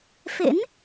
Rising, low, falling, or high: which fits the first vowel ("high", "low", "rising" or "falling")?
rising